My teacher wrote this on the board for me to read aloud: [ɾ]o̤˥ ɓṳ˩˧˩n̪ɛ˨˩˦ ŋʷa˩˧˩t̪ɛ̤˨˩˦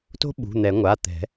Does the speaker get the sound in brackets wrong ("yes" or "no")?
yes